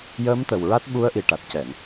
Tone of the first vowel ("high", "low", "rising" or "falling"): rising